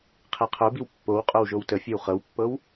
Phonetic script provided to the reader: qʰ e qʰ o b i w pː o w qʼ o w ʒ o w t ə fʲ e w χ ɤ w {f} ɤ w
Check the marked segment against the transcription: incorrect: pː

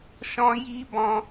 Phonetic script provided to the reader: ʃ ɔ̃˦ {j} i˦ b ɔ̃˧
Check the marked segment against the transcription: correct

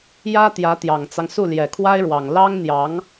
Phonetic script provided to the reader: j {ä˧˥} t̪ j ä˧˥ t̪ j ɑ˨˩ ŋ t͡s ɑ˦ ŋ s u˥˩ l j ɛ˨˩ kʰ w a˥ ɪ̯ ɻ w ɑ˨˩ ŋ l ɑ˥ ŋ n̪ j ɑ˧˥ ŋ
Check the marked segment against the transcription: incorrect: ä˥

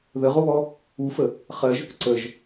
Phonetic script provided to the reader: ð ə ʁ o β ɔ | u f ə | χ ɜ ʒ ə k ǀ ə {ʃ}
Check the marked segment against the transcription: incorrect: ʒ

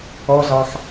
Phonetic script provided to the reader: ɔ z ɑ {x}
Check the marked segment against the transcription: correct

